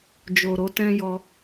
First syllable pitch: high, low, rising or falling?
low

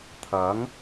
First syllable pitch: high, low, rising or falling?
rising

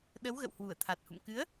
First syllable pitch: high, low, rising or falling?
rising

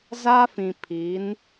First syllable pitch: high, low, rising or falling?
high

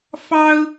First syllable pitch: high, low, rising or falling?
high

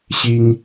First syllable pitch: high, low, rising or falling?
high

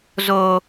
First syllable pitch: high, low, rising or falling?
high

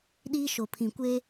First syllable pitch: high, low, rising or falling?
high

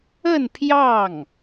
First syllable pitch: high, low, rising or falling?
falling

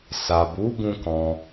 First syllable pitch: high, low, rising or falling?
low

